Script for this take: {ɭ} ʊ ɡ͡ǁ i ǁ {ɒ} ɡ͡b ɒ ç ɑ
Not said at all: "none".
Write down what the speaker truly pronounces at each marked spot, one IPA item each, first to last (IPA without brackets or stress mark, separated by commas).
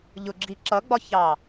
ʎ, ʌ